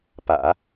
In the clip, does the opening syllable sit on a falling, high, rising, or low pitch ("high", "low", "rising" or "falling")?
low